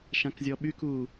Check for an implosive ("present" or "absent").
present